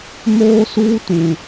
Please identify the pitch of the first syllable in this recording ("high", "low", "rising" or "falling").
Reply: high